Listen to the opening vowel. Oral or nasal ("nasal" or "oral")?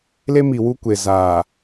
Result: oral